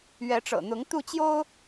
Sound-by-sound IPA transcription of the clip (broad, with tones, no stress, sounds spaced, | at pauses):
ɥ ɛ˨˦ ʈ͡ʂ ɤ̰˨˩ n̪ ʊ˨˦ ŋ t̪ u˥˨ t͡ɕ j o˦ ʊ̯